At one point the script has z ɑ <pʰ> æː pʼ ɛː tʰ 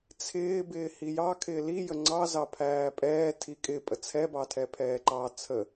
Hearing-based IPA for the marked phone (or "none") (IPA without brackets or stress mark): pʰ